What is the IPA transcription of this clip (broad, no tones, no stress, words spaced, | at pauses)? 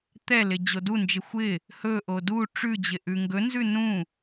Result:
t̪ɛlɪ d͡ʑodund͡ʒɪ xʷɪ | hɵʔo du ʈ͡ʂʉd͡ʑɪ ʔʉŋɡɵnzʉ nũ